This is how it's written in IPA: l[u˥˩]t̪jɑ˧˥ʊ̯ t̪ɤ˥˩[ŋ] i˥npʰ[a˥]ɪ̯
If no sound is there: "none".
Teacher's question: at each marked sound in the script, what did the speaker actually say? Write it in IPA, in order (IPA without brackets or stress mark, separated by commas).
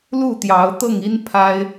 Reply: u˥˩, ŋ, a˥